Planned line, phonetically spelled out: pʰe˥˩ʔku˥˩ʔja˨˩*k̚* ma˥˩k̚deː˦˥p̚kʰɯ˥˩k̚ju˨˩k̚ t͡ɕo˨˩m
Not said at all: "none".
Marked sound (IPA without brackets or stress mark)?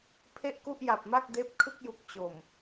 p̚